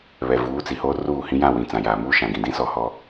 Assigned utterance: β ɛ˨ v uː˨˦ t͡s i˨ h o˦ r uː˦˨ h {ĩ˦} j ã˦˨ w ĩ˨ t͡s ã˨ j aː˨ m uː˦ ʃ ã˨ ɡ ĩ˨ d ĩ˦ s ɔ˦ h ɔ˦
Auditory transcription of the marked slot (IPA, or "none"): ĩ˦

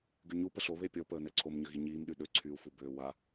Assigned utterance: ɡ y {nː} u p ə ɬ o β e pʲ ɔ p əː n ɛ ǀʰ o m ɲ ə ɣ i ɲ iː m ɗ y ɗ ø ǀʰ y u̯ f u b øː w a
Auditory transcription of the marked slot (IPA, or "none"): ɲ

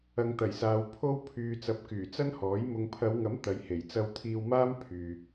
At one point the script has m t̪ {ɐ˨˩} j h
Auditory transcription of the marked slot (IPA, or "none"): ɐ˨˧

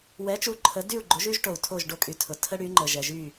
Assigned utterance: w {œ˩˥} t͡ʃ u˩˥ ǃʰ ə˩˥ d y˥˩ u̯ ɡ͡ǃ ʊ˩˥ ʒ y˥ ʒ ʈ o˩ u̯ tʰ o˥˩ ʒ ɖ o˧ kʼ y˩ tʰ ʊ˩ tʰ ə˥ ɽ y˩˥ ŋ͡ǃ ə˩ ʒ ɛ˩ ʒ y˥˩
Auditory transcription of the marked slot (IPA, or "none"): ɛ˩˥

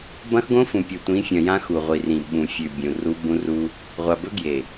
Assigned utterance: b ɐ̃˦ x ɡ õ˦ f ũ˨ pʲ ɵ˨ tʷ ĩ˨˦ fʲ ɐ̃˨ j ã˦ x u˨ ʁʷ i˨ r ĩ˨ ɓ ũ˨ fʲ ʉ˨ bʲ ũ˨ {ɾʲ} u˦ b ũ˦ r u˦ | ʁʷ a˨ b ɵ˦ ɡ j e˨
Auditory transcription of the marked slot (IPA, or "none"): r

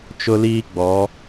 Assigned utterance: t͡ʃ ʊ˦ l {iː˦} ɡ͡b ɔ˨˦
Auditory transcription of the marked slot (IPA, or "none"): iː˦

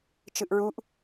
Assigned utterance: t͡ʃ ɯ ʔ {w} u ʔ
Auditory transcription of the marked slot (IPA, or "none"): ɹ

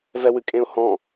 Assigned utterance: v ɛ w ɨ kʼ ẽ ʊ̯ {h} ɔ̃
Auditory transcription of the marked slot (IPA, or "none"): h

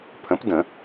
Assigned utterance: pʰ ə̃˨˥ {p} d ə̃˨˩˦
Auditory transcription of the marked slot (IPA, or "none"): p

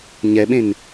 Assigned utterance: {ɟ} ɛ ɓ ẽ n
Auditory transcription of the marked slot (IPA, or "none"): ɲ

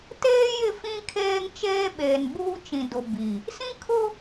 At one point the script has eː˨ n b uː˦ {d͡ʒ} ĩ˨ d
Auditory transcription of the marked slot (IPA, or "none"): t͡ʃ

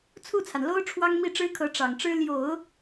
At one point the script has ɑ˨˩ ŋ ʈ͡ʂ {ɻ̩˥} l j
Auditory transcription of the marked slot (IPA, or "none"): ɻ̩˥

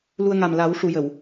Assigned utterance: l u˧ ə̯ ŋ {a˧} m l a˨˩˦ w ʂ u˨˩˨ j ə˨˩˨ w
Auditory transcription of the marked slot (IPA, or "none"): a˨˩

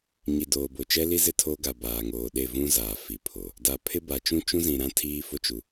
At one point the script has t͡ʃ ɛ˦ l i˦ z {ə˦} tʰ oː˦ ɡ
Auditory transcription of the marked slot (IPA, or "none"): ɪ˦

